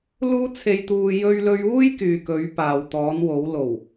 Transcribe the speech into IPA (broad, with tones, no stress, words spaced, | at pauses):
luː˥t͡sʰe˧jt̪uː˧ jɵ˥ɥlɵ˥ɥ uː˥jkyː˨kɵ˨˧ɥ paː˨wt̪ɔː˨˧nwo˨˧w lo˨˩w